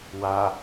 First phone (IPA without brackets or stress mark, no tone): w